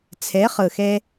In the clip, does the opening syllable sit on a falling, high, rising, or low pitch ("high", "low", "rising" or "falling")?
rising